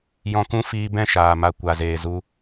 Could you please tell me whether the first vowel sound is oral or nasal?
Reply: nasal